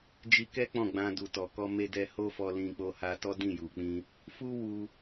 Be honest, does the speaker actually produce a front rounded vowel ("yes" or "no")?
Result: no